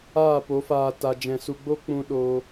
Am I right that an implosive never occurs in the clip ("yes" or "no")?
no